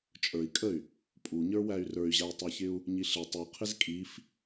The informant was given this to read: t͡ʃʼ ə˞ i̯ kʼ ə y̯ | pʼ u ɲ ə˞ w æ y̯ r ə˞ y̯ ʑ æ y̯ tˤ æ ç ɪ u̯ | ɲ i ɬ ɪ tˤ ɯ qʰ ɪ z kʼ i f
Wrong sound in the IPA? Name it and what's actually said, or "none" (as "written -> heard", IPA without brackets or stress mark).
ɯ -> u